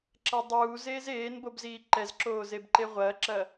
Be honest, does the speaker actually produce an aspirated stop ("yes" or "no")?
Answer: no